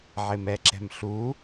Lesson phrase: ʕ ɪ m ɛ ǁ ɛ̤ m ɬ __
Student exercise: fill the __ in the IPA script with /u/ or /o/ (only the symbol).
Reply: u